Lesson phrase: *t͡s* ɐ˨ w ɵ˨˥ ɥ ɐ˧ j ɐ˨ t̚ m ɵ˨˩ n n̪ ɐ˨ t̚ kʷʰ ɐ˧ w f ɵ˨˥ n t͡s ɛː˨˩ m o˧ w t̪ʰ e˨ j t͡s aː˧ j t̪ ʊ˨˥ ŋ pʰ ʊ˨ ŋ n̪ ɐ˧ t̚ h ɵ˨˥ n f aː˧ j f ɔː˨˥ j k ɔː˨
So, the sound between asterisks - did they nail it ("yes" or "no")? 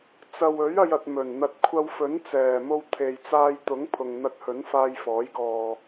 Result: yes